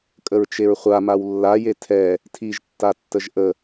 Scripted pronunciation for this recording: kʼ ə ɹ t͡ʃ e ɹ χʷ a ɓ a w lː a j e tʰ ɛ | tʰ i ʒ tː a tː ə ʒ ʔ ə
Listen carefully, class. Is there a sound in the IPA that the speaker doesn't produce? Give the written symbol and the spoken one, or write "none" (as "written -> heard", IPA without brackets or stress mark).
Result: ɓ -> m